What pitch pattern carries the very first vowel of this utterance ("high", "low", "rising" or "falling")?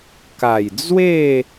low